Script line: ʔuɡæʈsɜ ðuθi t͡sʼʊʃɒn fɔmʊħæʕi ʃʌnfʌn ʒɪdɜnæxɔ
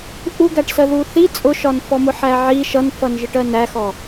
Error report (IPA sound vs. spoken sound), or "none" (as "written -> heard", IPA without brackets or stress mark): d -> ʈ